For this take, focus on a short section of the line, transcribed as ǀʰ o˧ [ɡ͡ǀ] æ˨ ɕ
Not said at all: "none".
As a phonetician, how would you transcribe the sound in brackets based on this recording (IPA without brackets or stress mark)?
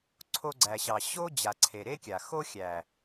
ɡ͡ǀ